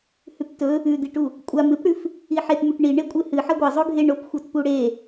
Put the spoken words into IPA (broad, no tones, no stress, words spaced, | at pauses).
hʉptɵ | ʉd̪iʈu | kʷʼam ɨpɽʉf | iħetmuʈ ɳi ɳekʷʼɨhɨ ħɐɡʷɐzˤo ɡʱeɳopxʷɐt puɽe